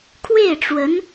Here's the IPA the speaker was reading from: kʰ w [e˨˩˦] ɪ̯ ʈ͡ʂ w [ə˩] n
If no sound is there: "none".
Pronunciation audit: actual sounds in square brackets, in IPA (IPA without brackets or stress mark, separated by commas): e˥˩, ə˧˥